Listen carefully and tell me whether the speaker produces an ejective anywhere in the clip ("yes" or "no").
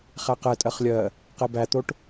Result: yes